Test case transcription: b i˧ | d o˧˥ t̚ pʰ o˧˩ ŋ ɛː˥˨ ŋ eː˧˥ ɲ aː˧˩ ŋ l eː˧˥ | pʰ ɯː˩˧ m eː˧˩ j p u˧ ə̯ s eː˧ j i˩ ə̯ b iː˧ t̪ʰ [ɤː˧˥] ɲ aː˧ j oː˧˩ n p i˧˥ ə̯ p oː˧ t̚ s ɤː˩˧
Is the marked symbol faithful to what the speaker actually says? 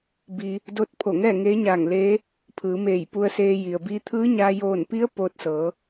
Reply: no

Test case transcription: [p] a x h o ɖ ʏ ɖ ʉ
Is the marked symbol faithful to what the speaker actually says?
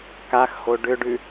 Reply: no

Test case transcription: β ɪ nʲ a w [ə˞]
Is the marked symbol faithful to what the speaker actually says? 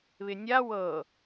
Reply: no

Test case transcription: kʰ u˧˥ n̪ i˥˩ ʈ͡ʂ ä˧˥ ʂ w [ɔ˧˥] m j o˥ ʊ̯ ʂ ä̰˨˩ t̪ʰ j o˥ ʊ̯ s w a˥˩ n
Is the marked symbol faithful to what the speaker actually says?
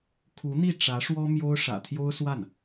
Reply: no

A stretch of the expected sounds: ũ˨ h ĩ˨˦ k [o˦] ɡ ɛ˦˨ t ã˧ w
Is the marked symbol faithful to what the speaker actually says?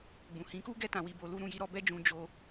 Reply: no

